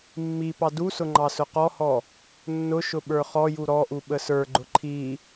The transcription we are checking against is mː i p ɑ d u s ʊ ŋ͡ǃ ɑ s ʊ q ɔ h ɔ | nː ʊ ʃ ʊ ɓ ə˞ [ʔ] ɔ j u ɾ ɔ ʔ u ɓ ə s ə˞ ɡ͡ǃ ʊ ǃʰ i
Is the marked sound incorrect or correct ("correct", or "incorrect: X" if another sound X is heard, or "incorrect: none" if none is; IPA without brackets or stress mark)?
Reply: incorrect: χ